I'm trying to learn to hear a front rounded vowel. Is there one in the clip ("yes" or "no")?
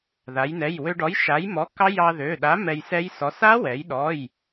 yes